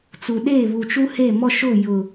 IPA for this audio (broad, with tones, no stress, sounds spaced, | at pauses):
t͡s u˨ ɗ eː˦˨ β u˨ t͡ʃ u˦ h e˦˨ m ɔ˦ ʃ ʊ˦˨ j ʊ˨